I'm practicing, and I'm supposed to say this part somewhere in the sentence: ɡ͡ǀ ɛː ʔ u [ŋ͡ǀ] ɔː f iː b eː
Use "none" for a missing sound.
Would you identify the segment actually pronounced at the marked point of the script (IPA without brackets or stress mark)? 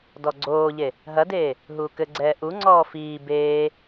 ŋ͡ǀ